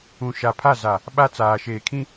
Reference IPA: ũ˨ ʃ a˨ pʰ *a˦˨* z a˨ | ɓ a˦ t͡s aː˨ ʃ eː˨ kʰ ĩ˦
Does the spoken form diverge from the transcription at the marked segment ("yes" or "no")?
no